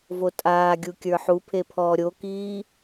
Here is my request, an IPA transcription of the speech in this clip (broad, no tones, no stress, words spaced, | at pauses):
votʼaːɡʲu kʲə˞ħupʰe pʰɔːɾʲokiː